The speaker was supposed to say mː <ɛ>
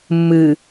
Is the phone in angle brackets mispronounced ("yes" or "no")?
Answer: yes